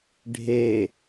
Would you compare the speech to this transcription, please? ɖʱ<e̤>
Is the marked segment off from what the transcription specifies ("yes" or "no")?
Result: yes